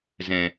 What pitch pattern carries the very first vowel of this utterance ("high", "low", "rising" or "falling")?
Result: low